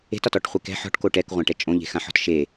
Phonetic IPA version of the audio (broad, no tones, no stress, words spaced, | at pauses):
e̤tɒtɔʈχʷe kɛ̤ ħɔ̤ʈko ʈɛkʁʷãʈɛ t͡ʃʼõʎe̤xãħɔ̤t ʃe